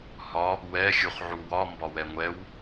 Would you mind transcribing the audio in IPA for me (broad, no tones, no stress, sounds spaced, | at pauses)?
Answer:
h ɒ | w ɛ xʲ u χ ʕ u w ɒ m b ɒ w ɛ ŋʷ ɛ w